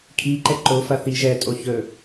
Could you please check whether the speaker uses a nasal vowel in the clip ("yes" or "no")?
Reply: no